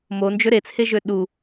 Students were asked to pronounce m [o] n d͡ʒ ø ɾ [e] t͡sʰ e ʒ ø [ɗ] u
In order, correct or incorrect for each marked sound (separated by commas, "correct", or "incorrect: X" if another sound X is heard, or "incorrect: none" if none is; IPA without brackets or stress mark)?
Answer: correct, correct, correct